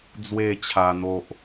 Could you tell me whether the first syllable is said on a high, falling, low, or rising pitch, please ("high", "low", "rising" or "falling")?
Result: falling